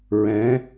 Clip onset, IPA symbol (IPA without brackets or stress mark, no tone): ɹ